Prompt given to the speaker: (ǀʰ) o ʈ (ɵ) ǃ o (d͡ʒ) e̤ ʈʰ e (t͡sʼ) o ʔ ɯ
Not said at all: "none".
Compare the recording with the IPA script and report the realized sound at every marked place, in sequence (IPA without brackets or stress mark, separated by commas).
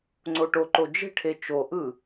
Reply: ŋ͡ǀ, o, d͡ʒ, t͡ʃ